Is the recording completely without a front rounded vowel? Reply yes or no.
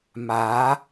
yes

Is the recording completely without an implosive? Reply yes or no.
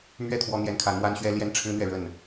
yes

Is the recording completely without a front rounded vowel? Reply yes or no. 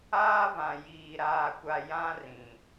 yes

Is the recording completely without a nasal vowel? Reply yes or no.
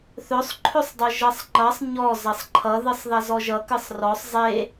yes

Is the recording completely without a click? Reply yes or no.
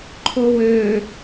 no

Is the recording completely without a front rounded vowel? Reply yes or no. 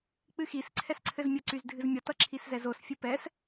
no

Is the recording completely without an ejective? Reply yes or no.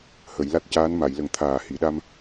yes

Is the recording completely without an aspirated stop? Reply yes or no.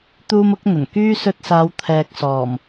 no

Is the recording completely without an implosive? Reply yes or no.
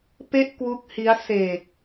yes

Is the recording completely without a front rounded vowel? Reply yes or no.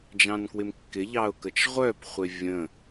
no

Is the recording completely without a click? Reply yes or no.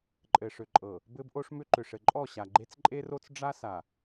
no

